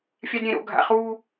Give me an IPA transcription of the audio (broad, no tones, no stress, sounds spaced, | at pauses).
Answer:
fʲ a d ɾʲ ẽ ɾ o̰ ɡʱ a̰ χ uː